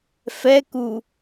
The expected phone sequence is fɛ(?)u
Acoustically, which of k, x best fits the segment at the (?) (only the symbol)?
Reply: k